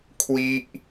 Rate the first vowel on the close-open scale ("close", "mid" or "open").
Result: close